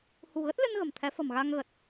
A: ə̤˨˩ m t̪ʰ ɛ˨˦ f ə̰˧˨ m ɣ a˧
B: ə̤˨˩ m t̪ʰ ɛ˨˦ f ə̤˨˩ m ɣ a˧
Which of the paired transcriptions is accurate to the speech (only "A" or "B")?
B